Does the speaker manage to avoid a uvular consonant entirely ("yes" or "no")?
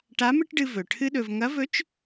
yes